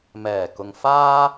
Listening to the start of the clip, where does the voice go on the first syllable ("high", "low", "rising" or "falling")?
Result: low